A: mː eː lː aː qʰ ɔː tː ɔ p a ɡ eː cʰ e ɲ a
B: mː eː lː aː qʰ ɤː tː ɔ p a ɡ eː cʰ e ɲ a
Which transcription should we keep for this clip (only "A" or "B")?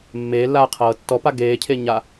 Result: B